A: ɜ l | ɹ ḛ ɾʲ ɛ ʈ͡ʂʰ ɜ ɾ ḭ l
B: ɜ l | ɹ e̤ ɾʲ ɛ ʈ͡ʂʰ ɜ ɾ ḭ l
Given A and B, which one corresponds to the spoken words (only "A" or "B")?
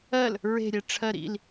B